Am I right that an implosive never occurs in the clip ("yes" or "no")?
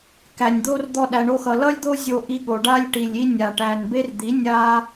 no